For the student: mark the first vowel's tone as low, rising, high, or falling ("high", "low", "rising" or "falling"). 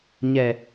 low